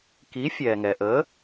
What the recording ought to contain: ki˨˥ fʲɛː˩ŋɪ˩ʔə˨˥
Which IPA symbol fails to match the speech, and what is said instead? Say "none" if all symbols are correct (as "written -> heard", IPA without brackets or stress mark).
ɪ˩ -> ɛ˩